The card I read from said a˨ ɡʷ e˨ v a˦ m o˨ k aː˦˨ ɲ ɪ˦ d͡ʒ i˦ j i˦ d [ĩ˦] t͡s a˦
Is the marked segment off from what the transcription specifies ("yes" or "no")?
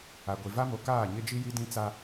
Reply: no